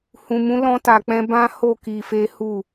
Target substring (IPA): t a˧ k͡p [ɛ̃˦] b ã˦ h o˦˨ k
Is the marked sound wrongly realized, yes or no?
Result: no